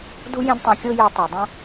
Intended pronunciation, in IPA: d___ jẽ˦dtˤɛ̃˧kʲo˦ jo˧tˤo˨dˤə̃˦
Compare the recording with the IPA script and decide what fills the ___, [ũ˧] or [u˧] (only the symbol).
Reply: u˧